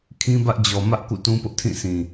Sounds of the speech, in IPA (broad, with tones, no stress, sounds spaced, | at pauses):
kʰ ĩ˦ b ä˦ ʔ d͡ʑ ɔ˨ m ä˦ ʔ k ṵ˦˨ t ũ˦ p ʊ˦ ʔ tʰ ĩ˦˨ sʰ ĩ˨